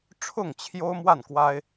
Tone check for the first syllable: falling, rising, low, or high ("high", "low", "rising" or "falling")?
falling